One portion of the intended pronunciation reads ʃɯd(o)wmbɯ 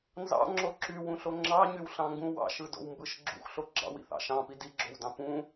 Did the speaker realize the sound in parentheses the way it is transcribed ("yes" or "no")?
no